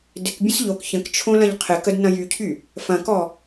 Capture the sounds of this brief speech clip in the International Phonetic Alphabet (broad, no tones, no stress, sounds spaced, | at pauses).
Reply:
d ɪ k bʲ ə̃ s ʎ o k ç ə̃ k t͡ʃʰ õ l ɐ̃ ʎ qʰ ɪ k ə d n ɐ̃ j y cʰ y | f ɐ̃ k ɔ